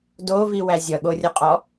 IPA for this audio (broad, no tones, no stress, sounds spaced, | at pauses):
d o v i w æ zʲ ʌ ɠ o rʲ ʌ qʼ ɔ